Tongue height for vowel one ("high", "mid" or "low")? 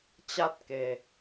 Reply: low